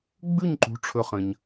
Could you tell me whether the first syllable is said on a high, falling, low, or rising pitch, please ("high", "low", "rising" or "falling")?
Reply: falling